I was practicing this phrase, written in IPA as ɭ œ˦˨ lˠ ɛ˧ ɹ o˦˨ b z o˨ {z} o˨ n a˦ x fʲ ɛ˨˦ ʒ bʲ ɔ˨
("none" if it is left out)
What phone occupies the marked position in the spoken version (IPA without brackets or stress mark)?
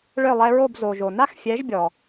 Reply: ʒ